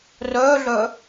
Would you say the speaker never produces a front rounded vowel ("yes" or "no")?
no